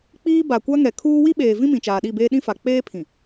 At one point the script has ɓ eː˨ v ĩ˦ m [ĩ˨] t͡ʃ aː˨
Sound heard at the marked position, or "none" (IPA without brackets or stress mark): ĩ˨